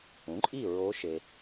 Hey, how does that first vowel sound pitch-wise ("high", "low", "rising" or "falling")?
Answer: rising